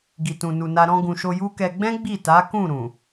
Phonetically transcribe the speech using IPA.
ɡ i˨ t ũ˨ n u˨ n a˧ ɾ ɔ̃˧ ɡ ũ˨ ʃ o˧ j u˦ k ɛ˧ ɡ͡b ɛ̃˦ ɡ͡b i˦˨ t a˨˦ k ũ˦˨ ɾ ũ˨

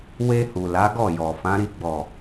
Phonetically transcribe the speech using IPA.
w e˧ h u˨ l a˨˦ ɡ ɔ˦˨ j ɔ˨ f ã˨˦ ɾ i˦˨ ɡ͡b ɔ˨

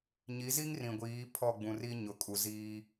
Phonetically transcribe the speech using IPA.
ɲ i˨˦ z i˦ ŋ r ĩ˨ ɡʷ iː˨˦ pʰ ɔ˦˨ ɡ͡b ũ˨ r i˦ ɲ ʊ˨ kʼ u˨ z iː˦

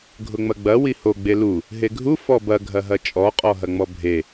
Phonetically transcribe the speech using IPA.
ɡʱ ʊ ŋ͡m ɐ ɡ͡b ɐ w i h o ɡ͡b e l u | ɦ e ɡʱ u f ɔ b ɐ ɡʱ ɐ ɦ ɐ t͡ʃʼ ɔ qʼ ɔ ɦ ɐ ŋ͡m ɔ bʱ e

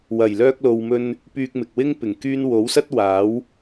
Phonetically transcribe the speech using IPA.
w ɐ˨˩ j l œː˧ k̚ l o˨ w m ɵ˧ n | p yː˧ k̚ m ɪ˨ k̚ w ɪ˥ ŋ p ɪ˨˩ ŋ k yː˥ n w o˨˥ w s ɐ˥ t̚ w aː˨˥ w

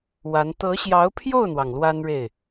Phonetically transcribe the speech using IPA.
w a˧˥ n t̪ ɤ˧˥ ɕ j ɑ˧˥ ʊ̯ pʰ j o˥˩ ʊ̯ n̪ w ɑ˩ ŋ l w a˥ n ɻ e˥˩ ɪ̯

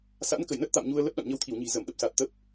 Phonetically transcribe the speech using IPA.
s a̰˧˥ n k ə˧˩ j n ə˦˥ t̚ t̪ a̰˧˨ m ɲ u˧ ə̯ l ə˦˥ p̚ ɗ a̰˧˨ n ɲ ə˧ w t̪ʰ i˧˩ w ɲ i̤˨˩ z ə˧˩ m ɗ ə˦˥ p̚ s a˨˩ t̚ t̪ ə˦˥ p̚

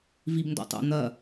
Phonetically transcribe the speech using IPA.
v i b n d ɔ̰ tˤ o̰ n̪ ɐ

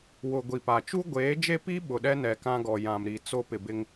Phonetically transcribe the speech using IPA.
w ʊ˨ ɡʷ i˨ p a˨ t͡ʃ u˦ ɡʷ eː˨˦ d͡ʒ e˦ p i˦ ɓ ʊ˨ ɗ ɛ˦ n ɛ˨ k ã˦ ɡ ɔ˨ j ã˨ m ɾ i˨ t͡s o˦ p ɪ˨ b ɪ˦ ŋ

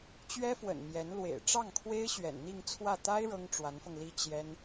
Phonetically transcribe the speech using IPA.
t͡ɕ ɥ ɛ˥ f w ə̰˨˩ n m j ɛ˧˥ n l w ḛ˨˩ ɪ̯ ʈ͡ʂ ɑ˥˩ ŋ kʰ w e˥ ɪ̯ ɕ ɥ ɛ̰˨˩ n n̪ i˥˧ ŋ t͡sʰ w ä˥˩ t̪ a˥ ɪ̯ ɻ ɤ˥ ŋ ʈ͡ʂ w a˧˥ n f ɤ˧ ŋ l i˥ t͡ɕ j ɛ˥ n

